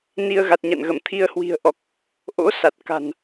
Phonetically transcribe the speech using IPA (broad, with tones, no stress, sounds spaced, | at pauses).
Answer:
n i˧ ə̯ ɣ a˨˩ t̚ ɲ a̰˧˨ n ɣ ə˧˩ m t̪ʰ i˧ ə̯ h w i̤˨˩ ə̯ ʔ ɔ˨˩ k̚ | ʔ o̰˧˥ s a˨˩ t̚ k a̤˨˩ n